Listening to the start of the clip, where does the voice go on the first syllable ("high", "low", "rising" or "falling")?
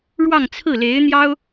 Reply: falling